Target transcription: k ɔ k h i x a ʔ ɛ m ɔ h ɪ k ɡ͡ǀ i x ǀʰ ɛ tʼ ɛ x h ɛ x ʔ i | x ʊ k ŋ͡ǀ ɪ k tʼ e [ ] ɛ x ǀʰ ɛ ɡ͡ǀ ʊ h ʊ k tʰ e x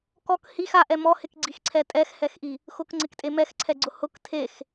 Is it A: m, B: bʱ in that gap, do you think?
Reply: A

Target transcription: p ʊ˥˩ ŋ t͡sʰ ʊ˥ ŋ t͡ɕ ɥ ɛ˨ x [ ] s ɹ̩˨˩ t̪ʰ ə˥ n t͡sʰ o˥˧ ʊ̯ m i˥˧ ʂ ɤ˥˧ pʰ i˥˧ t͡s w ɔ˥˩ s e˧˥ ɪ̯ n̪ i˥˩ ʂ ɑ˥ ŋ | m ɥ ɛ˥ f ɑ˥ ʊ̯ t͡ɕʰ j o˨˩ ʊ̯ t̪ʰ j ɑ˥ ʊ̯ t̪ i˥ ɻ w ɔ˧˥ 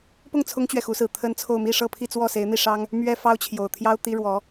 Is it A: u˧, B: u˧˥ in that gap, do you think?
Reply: B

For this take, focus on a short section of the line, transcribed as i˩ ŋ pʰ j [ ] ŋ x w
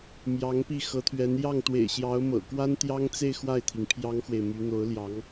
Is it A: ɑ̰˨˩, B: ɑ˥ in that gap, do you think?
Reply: B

